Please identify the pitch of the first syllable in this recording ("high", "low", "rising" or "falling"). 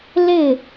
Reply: falling